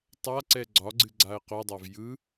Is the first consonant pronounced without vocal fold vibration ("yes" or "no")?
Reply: yes